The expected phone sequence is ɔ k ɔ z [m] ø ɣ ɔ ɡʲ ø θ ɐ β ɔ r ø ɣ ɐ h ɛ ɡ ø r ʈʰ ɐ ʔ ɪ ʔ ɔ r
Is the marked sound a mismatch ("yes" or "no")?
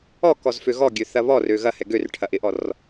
yes